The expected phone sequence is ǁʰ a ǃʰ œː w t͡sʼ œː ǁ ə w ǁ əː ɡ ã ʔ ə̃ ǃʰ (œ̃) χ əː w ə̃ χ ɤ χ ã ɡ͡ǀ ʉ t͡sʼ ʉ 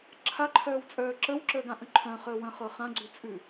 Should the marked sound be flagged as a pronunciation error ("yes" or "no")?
no